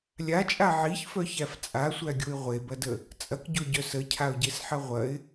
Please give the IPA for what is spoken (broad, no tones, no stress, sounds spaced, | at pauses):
lʲ a t͡ʃʼ a ʕ i ç f œ ç æ f t͡sʼ a sʷ æ ɡʲ o ɪ̯ ʁʷ e b ɐ d ə | t͡sʼ ɐ k ɟ o ɟ œ s ə cʰ a ʊ̯ ɟ e s ħ ɐ ʁʷ ɐ ɪ̯